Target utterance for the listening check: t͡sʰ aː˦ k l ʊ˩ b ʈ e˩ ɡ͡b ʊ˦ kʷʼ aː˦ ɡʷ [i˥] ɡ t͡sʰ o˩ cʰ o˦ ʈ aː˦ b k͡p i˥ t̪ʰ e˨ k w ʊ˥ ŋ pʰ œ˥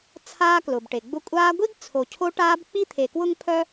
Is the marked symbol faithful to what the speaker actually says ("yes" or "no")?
yes